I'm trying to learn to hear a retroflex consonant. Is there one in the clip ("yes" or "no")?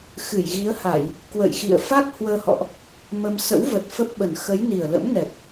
no